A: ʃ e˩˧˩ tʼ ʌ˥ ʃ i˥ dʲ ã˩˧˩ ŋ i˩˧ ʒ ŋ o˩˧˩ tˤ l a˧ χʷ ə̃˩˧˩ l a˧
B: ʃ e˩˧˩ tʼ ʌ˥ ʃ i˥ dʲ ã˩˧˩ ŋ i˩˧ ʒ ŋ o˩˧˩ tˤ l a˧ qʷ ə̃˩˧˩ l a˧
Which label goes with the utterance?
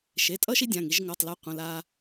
B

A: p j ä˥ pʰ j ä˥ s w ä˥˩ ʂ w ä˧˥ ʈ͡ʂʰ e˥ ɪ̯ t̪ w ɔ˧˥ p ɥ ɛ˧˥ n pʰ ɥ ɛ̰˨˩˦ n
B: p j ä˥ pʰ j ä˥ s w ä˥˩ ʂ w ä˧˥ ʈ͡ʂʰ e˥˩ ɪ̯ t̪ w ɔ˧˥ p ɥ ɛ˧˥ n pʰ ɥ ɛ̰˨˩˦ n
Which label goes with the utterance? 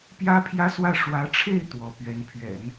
B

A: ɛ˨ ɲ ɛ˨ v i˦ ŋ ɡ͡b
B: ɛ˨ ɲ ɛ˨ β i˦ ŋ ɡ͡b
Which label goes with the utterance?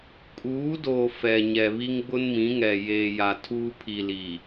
B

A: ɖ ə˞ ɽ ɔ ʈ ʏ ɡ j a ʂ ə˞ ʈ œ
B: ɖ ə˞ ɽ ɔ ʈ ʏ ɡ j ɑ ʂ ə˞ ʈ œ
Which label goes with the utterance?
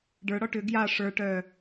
A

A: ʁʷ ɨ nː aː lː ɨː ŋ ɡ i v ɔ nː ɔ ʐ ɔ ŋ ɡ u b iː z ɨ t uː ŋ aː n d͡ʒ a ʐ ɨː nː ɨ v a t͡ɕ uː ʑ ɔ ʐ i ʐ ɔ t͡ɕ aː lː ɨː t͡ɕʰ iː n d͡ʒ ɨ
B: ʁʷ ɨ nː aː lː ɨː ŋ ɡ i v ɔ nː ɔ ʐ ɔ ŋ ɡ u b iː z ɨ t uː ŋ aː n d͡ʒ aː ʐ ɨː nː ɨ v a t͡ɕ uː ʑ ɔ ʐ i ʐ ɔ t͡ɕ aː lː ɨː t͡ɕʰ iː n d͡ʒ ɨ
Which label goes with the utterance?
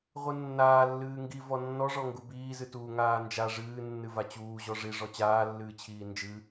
A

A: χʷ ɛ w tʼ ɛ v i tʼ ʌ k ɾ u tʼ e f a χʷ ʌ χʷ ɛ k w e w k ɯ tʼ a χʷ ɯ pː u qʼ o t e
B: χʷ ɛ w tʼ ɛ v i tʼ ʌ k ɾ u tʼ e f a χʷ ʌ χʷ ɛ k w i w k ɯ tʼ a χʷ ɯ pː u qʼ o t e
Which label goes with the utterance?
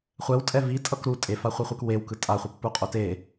A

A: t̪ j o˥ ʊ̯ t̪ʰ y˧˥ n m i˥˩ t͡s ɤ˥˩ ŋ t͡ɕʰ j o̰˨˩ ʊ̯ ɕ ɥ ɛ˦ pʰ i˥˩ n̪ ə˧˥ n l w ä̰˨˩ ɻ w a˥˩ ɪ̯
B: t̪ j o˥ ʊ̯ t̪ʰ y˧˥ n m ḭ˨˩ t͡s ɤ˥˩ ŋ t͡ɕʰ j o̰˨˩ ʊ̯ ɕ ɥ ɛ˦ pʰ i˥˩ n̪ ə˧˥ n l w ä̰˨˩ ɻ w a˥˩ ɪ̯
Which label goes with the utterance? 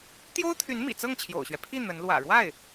B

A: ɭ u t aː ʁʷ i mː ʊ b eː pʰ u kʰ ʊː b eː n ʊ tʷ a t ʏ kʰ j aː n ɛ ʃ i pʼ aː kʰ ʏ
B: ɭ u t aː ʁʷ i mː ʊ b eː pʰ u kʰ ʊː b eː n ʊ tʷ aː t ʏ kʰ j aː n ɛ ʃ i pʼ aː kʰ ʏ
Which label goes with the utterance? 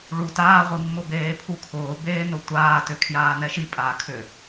B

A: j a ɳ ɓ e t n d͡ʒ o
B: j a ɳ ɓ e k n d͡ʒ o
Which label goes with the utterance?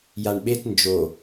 A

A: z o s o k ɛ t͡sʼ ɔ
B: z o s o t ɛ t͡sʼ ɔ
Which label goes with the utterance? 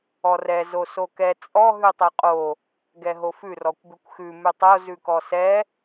A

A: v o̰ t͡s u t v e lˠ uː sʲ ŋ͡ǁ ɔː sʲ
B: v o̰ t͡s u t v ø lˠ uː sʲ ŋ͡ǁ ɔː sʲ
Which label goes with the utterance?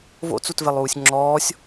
A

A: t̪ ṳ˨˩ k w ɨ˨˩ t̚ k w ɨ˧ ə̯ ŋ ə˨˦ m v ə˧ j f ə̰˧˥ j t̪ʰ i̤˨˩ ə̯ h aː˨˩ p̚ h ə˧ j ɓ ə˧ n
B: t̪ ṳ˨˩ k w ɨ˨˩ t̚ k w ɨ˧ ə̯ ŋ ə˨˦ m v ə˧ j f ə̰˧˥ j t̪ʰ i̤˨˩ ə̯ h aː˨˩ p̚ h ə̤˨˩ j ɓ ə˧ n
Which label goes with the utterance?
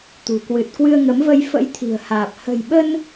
B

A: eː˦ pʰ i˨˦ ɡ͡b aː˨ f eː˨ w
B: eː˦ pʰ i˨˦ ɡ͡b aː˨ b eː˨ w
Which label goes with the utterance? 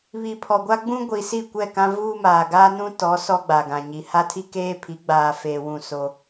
A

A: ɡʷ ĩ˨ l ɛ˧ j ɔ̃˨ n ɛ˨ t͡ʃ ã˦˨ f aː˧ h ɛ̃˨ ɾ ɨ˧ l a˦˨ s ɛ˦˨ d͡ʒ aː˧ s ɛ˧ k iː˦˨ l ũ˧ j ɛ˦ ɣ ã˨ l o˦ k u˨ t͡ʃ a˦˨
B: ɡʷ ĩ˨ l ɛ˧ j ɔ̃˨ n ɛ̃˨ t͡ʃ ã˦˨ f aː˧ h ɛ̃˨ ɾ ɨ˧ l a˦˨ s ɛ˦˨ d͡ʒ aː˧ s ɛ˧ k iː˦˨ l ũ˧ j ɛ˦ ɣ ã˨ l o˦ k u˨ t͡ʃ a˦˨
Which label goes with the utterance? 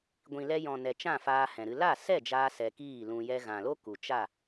A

